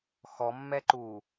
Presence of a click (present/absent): present